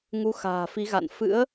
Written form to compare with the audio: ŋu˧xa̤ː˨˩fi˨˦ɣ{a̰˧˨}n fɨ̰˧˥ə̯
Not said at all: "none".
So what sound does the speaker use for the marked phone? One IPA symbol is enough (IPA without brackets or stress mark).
a̰˧˨